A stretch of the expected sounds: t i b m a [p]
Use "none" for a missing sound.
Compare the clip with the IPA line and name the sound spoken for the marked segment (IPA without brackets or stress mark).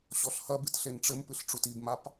p